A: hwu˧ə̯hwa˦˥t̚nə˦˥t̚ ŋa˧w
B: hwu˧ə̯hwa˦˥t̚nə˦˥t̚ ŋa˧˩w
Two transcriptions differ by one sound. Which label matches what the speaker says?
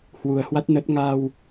A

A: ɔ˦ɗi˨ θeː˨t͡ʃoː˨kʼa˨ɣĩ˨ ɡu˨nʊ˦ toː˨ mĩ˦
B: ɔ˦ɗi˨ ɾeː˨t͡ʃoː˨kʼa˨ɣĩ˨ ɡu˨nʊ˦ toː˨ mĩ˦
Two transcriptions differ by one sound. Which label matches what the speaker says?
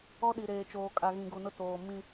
B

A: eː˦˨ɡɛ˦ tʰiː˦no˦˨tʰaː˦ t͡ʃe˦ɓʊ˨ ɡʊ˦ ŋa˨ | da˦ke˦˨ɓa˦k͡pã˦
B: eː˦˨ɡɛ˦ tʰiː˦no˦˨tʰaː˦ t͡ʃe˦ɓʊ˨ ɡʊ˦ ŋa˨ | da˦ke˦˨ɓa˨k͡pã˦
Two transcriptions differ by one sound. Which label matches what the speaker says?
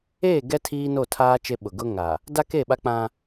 A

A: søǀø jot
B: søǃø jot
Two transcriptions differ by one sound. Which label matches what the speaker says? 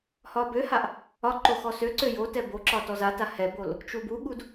A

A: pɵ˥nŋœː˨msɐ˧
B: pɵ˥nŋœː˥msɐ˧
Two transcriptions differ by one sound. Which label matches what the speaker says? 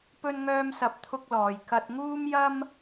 B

